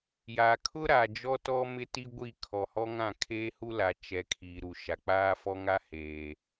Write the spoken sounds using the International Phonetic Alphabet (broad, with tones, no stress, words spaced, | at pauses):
ja˨kʰʊ˦ɾa˨ d͡ʒɔ˦tɔ˦mɪ˦ ti˦ɡʷi˦˨ kʰɔ˨hɔ˦ŋã˦˨ kʰeː˦hu˦la˨ t͡ʃɛ˨ kʰiː˨ɾu˨ ʃa˨k͡paː˦ fɔ˦ŋa˦ heː˨